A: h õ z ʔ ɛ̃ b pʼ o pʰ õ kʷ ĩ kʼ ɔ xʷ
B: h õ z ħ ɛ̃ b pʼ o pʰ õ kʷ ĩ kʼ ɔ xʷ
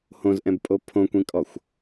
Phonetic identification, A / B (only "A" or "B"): A